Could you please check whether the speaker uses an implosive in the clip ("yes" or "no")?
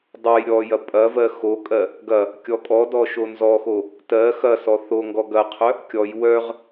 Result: no